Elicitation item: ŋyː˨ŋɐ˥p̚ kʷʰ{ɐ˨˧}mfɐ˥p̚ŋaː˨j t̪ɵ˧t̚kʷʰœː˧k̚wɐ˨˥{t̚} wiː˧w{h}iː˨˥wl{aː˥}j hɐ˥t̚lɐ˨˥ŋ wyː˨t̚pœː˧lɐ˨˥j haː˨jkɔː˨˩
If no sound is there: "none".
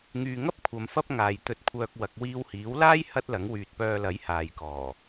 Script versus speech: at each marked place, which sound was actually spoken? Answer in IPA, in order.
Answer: ɐ˨˧, k̚, h, aː˥

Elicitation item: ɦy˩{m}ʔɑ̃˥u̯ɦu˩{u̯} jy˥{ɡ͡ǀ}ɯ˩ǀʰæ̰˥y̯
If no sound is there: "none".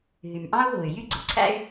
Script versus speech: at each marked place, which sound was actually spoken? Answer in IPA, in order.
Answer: m, y̯, ɡ͡ǀ

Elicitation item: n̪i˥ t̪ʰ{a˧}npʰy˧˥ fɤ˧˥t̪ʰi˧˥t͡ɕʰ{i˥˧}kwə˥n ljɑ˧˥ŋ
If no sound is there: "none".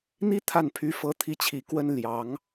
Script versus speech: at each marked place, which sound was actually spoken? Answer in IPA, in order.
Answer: a˥˩, i˨˩

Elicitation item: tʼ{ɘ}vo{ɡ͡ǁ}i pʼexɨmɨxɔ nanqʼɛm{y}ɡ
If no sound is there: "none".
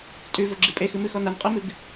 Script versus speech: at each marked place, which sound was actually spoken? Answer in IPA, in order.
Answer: ʉ, ɡ͡ǁ, ɨ

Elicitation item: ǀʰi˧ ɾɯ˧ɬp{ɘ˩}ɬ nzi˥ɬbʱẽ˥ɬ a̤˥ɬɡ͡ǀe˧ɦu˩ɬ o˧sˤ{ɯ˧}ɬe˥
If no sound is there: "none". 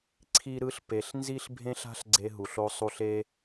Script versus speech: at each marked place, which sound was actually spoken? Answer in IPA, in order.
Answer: e˩, u˧

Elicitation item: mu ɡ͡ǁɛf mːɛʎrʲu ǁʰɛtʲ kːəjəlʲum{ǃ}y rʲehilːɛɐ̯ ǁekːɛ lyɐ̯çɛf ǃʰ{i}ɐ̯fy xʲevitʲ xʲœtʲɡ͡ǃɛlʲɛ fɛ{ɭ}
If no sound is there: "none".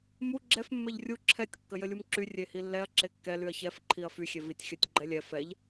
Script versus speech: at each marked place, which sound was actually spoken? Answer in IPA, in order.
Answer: ǁ, i, ʎ

